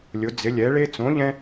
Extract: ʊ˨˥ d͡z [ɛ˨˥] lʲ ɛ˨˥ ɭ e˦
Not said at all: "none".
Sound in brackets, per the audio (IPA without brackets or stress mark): ɪ˨˥